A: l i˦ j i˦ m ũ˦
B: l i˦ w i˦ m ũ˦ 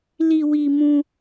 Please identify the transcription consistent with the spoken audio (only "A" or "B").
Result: B